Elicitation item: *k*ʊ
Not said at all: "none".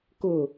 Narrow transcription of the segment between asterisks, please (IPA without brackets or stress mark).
k